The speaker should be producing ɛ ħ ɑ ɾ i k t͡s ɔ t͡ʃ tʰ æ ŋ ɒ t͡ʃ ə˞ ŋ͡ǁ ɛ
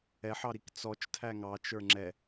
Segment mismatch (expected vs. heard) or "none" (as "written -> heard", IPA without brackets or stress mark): ɒ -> ɑ